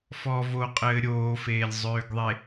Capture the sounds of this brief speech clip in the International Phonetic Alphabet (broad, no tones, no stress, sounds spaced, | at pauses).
f ɔ v o qʼ ɘː ɾʲ oː f eː lʲ zˤ øː ɡ ðˤ e